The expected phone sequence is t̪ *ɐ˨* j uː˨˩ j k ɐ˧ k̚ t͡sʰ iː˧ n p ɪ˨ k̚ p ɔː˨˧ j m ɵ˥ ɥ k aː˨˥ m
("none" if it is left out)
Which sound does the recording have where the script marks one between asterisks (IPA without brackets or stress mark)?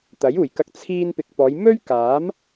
ɐ˨˥